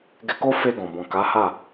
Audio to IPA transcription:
ɡ ɛ˧ k o˦ f e˧ ɡ ɔ̃˨ b ɔ̃˨ k a˨˦ h a˦˨

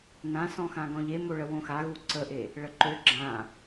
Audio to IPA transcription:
n ã s ɔ̃ x ã ɡ ɔ̃ ʎ e m o ɭ ə w õ x a ɣ u ǀ ə ʔ e | ɭ ə ǃ ø ɡ͡ǁ ã

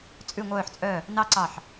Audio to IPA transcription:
t͡sʼ ʉ˧˩ ŋʷ œː˧˩ ħ t͡sʼ œ˧˩ | n ɑ˦˥ ǀ ɑ˧˩ ħ

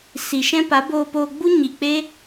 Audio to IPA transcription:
s i˨ ʃ ɛ̃˧ p a˨˦ b oː˧ p oː˧ ɡ͡b u˦ ɲ i˨ k͡p e˦

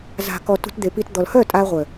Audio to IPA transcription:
z a̤˨ k ɔ˨ t ṳ˧ t d̪ e˨ p i˧ t d̪ ɔ˨ l h œ˦˨ tʼ a˧ ʁʷ œ˨

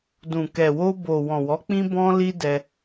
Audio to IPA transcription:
d ũ˨ k ɛ˨ w o˧ b o˨ w ɔ̃˨ w ɔ˨˦ k͡p ĩ˦ b ɔ̃˦ l i˦ d ɛ˧

